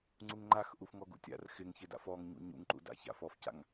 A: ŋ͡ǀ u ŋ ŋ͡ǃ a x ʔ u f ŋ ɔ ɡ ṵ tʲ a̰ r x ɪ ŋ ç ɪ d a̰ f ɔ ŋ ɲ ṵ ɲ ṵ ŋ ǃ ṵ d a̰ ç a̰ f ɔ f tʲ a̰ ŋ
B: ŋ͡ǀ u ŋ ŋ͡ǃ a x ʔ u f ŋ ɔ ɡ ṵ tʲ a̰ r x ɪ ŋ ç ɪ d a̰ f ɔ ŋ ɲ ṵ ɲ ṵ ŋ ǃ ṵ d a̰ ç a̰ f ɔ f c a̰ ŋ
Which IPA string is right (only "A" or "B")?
B